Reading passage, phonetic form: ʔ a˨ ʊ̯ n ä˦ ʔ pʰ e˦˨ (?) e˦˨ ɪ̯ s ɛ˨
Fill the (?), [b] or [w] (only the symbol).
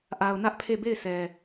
b